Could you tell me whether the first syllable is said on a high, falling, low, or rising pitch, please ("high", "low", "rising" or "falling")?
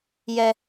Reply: high